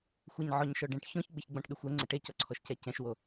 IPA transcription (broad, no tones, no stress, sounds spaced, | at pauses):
xʷ e ɲ ʕ ɔ ɲ ʃ ɔ ɖ ɛ̃ ʈ ç ɔ̃ ç ɡ͡b ɪ ç ɡ͡b ɔ̃ ʈ ɗ ʏ xʷ ɛ ŋ͡ǀ ə ʈ e c ɔ ǀʰ ɔ ʃ c ɛ c ɛ̃ ʃ w o